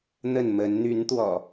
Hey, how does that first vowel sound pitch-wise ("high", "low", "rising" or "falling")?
falling